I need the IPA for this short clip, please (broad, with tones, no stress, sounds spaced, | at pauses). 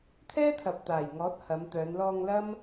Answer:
t̪ʰ ɛː˥ t̪ʰ ɐ˨ p̚ t̪ aː˨˩ j ŋ ɔː˨˥ t̚ h ɐ˨˧ m t̪ œː˨˧ n l ɔː˧ ŋ l ɐ˥ m